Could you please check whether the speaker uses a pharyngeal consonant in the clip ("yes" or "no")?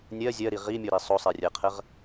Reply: no